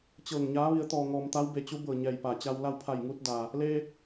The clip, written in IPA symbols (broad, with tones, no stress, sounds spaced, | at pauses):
t͡ɕ ɤː˧˩ ŋ ɲ aː˧˥ ʋ i˩˧ ə̯ t̪ ɔː˩ ŋ ɔː˩ m t̪ a˧˥ w b e˧˩ t͡ɕ u˧˥ b ɤː˧˩ ɲ ɛː˧˩ j p a˧˩ t͡ɕ a˧ w l a˥˨ w pʰ a˧˩ j ŋ uː˧ t̚ d aː˩ | l eː˧